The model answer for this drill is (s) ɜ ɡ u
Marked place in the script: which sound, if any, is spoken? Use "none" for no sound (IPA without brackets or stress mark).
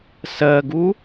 s